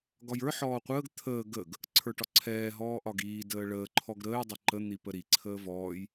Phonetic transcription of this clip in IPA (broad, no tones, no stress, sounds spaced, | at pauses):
ɡ ɒ j ə˞ ħ ɔː qʷ əː ɡ t̪ʰ əː ɡ ə ɡ | ǀʰ ə˞ ʈ ɒ ǀʰ ɛː ɦ ɔː ʔ ɒ ɡ iː d əː ɭ əː ǃʰ ɔ ɡ ɾ əː j dˤ ə ǃ ə n̪ i p ə ɾ i ǀʰ əː v ɔː j